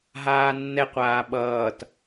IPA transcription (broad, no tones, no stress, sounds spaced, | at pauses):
ɦ aː nː ɛ qʷ aː ɓ ʌː t